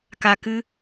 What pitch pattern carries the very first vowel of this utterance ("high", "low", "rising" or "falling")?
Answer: low